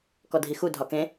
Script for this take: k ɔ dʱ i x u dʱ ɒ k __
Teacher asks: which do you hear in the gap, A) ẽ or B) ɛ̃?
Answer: A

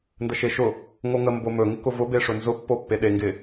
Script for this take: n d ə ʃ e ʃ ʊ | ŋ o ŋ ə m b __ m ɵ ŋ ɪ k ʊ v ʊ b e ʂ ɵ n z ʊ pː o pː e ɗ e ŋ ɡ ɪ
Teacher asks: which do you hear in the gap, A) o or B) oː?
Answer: A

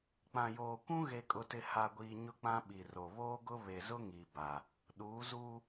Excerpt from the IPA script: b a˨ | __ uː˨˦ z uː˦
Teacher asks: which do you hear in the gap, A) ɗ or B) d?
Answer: A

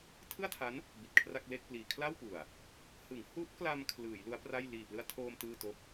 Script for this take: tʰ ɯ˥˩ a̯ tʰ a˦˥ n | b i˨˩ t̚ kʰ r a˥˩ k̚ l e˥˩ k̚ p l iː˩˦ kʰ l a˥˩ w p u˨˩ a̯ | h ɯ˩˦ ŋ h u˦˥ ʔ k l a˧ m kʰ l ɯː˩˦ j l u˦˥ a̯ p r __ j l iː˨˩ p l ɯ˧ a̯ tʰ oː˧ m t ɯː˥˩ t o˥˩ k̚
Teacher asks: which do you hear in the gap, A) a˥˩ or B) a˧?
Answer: A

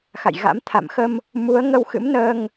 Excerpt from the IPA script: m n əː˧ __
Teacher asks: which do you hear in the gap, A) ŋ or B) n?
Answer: A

